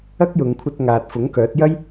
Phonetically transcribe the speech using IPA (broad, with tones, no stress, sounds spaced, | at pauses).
ɐ˥ k̚ j ʊ˨˧ ŋ kʷʰ ɐ˧ t̚ ŋ aː˨ t̚ f ʊ˨˥ ŋ k œː˨˥ t̚ j ɐ˥ j